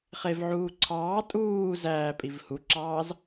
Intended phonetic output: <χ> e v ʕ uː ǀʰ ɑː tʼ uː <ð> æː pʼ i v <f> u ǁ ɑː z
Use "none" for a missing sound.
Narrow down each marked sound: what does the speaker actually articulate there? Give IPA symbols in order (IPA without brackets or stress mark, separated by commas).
χ, z, h